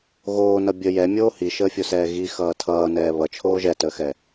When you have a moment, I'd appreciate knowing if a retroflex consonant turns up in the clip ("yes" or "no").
no